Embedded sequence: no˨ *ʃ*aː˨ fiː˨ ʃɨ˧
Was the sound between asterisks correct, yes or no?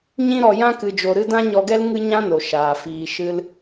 yes